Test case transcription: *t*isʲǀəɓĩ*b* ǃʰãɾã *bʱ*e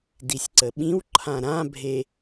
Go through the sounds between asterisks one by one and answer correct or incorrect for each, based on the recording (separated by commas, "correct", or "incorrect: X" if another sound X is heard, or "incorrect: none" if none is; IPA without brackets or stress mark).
incorrect: d, incorrect: w, correct